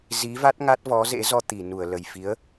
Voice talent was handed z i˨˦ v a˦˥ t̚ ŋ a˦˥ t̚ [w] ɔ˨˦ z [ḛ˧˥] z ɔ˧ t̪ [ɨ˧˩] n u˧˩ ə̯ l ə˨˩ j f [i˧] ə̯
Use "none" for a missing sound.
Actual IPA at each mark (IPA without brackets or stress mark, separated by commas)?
v, ḛ˧˥, i˧˩, i˨˦